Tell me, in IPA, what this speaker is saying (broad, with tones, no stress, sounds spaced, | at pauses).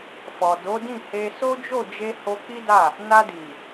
f ɔ˨ d o˨˦ d ĩ˦˨ h e˧ s o˦ d͡ʒ o˦˨ d͡ʒ e˧ h o˧ k͡p i˦ d a˦˨ | n a˧ d i˨